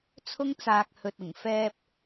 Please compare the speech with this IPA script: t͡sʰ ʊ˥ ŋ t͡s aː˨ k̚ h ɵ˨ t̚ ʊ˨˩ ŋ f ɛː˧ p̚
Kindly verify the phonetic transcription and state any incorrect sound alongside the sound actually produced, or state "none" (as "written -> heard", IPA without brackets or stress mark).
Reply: none